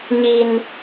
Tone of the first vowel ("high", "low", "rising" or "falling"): low